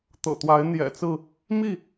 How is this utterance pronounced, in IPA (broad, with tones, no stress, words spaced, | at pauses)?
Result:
t̪ɤ̰˨˩t̪wa˨˦ɪ̯n̪jɛ̰˨˩t͡sɹ̩˥˨ | mi˥˨